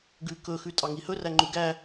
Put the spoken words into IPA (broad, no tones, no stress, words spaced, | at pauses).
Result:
ɡʉ kɵxʉtʼɑ ŋihɵræ ŋ͡ǃuɡæ